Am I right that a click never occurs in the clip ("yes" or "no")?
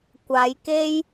yes